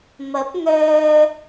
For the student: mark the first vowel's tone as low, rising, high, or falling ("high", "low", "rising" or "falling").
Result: rising